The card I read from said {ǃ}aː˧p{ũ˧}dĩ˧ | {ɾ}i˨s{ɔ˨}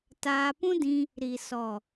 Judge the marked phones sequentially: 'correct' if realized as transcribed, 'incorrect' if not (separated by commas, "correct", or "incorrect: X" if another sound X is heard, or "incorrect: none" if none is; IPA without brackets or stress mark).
incorrect: t, incorrect: ũ˦, correct, correct